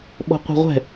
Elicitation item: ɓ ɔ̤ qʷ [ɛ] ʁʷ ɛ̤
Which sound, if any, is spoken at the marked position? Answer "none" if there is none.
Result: ɛ̤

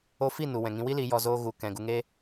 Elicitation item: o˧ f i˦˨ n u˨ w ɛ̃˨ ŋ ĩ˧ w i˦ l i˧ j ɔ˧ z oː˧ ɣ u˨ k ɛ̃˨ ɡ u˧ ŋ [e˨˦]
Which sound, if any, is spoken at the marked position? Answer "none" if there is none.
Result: e˦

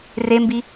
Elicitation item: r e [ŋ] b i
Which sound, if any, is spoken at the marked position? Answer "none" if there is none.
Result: m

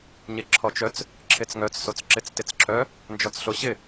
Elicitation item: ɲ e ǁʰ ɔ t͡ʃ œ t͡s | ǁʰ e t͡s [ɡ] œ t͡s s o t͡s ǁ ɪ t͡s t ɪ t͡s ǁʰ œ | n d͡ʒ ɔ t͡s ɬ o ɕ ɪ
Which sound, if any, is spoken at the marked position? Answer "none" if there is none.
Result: ŋ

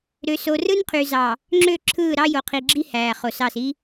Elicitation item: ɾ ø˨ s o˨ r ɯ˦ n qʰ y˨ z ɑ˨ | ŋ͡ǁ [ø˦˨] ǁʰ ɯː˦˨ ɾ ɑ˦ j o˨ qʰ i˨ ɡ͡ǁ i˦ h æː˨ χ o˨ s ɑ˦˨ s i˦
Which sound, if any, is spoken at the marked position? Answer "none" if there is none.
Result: ø˦˨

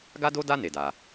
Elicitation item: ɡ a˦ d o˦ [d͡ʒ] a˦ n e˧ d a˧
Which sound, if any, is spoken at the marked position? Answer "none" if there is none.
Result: d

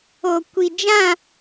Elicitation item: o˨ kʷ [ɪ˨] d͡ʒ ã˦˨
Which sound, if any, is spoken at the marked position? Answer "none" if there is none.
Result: i˨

